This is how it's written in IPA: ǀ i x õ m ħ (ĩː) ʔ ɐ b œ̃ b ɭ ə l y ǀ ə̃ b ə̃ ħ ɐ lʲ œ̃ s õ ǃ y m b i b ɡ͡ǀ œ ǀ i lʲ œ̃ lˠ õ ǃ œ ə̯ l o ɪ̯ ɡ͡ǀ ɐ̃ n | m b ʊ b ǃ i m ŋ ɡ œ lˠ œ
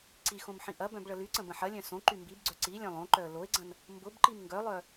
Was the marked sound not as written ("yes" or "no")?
yes